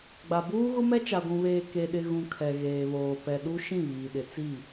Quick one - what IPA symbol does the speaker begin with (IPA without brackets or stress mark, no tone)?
ɡ͡b